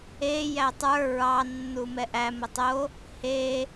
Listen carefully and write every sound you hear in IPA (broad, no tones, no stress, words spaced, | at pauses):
e jætˤə˞ ɹɑ nːumɛʔæ mətˤo | he